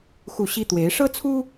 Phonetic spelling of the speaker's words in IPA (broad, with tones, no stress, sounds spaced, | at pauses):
x u˥˩ ɕ i˥ t̪ w e˧˥ ɪ̯ ʂ ɤ˥ t͡sʰ u˥